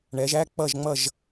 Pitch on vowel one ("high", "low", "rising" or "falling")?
rising